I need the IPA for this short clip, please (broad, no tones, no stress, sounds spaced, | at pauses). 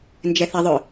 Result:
n d͡ʒ ɛ θ ə ðˤ ʊ